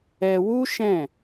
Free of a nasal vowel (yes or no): no